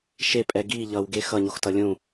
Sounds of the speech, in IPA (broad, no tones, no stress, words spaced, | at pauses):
ʃepʼɛ ɡi ʎʌwɡe xʌɲoxtʌ lʲũ